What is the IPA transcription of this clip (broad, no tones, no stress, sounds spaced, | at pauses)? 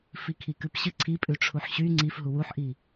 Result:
f i kʰ i k ʉ p ɕ ɨ ǀʰ i pʼ ʉ ʈ͡ʂʰ u ħ ɕ y ŋ͡ǀ i f ɦ u w u ħ ʔ i